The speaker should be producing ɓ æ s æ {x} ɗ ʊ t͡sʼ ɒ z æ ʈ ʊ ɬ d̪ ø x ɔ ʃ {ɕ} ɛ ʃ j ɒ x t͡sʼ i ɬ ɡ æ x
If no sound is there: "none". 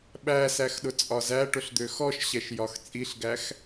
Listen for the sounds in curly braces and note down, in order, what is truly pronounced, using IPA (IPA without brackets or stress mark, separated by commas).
x, ɕ